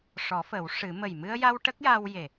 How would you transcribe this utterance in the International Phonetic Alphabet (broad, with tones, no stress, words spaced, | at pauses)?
ʂɔ˨˩˦fə˨˩˦w ʂɨ˨˩˦ mə˨˩jmɨ˧ə̯ja˧w ʈə˦˥k̚ja˧w je˨˩